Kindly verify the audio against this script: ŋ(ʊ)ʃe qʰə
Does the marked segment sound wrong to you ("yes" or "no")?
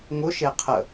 no